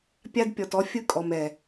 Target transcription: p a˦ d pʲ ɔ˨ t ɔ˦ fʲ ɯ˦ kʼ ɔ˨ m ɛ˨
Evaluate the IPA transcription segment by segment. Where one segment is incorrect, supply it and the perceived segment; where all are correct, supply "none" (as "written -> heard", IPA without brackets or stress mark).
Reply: p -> pʲ